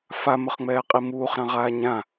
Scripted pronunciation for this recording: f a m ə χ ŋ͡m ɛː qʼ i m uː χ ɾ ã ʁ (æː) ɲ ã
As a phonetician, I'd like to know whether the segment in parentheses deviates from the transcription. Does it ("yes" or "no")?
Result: yes